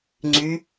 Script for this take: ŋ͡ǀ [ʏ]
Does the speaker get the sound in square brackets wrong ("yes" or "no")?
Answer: yes